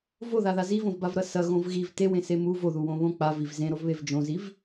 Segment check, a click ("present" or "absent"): absent